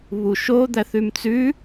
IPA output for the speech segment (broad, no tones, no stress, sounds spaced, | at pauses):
β u ʃ o d̪ æ θ ʉ m t͡s ʉ